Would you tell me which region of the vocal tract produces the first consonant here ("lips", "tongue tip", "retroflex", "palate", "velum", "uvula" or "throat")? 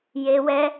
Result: palate